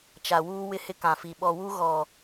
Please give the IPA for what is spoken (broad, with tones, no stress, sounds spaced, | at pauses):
t͡ʃ a˨ w uː˦ w ɪ˦ h ɪ˦ k ã˨ f i˨ ɓ ɔ˨ w u˦ ɣ ɔ˨